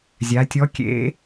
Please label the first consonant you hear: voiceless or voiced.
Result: voiced